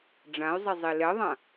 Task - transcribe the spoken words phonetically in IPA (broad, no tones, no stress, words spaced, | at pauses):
ɖ͡ʐãy̯zˤezˤi lɛðˤã